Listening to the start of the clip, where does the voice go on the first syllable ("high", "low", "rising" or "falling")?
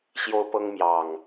high